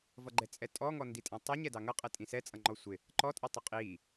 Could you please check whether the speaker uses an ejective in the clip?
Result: yes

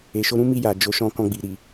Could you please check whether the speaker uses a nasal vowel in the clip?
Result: yes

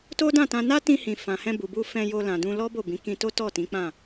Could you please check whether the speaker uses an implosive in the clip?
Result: no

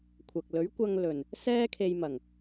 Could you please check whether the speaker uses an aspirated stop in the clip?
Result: yes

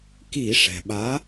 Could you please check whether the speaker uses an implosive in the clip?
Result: yes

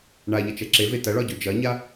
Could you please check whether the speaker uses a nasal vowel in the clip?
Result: no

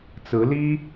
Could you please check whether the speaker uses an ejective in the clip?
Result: no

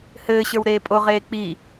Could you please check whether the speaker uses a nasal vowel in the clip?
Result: no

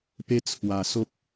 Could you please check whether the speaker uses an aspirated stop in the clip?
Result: yes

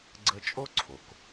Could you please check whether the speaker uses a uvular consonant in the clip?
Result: no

